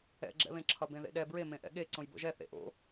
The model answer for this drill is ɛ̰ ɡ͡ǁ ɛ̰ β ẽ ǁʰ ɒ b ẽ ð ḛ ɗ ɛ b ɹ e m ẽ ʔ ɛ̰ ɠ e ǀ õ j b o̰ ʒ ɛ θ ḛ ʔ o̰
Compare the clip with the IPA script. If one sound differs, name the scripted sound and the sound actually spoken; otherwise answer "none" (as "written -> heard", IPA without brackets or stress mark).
none